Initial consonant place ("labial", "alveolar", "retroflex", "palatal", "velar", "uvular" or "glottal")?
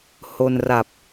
glottal